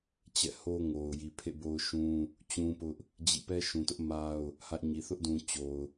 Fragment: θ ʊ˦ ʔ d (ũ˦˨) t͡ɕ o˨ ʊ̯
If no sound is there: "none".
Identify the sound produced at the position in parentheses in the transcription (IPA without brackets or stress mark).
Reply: ũ˨